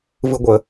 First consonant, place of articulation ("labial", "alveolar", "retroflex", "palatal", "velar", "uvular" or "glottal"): labial